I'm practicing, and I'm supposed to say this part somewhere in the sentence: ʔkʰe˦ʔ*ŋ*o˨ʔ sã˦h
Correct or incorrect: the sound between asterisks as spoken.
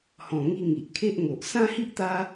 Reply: correct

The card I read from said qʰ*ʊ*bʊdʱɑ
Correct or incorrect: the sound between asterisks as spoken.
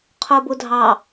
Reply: incorrect: ʊː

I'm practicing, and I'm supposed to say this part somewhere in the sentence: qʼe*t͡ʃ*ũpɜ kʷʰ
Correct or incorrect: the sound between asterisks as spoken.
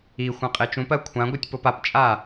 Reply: correct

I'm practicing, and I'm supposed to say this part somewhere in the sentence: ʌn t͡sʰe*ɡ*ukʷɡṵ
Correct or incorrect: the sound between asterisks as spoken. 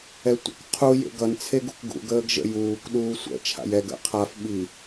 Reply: correct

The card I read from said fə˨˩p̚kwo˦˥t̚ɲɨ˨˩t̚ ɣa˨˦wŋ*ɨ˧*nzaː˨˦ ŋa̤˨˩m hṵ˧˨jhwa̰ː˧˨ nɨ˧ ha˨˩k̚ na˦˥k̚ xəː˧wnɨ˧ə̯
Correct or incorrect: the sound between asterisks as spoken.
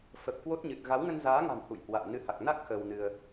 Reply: incorrect: ə˧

